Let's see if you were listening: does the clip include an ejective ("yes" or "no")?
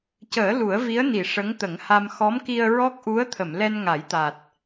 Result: no